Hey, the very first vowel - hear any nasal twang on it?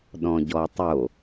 yes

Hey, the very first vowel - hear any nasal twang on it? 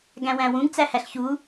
yes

